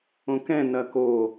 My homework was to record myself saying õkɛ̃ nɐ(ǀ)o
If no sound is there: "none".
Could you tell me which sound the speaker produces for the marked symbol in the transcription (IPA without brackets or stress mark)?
k